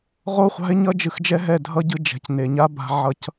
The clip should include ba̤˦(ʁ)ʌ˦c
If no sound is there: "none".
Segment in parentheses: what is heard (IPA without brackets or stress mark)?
ʕ